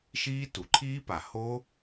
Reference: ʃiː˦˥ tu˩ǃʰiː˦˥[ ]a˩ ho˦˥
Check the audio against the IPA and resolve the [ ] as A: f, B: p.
B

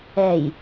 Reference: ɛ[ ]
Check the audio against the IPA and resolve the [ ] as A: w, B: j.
B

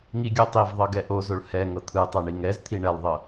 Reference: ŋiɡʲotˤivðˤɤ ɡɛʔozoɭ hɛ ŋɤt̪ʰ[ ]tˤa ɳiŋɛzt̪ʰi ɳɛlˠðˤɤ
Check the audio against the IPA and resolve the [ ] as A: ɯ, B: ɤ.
A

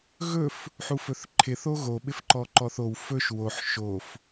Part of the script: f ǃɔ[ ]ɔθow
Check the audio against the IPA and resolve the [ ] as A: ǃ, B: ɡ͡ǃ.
A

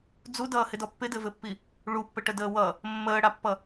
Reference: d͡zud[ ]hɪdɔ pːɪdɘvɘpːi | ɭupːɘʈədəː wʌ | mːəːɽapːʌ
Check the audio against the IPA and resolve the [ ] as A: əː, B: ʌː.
B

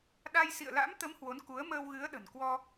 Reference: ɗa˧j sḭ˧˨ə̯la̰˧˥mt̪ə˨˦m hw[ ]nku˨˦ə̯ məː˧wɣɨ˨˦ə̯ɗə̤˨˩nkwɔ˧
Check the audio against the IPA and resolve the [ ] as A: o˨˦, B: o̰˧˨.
A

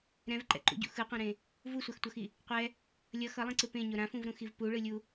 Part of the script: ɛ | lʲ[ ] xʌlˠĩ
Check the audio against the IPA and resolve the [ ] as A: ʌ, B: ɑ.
A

